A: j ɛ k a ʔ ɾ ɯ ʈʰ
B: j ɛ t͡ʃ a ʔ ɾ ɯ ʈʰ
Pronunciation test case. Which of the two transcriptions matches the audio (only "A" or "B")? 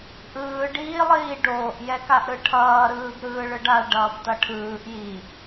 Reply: A